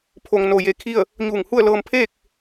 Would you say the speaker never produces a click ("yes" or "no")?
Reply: yes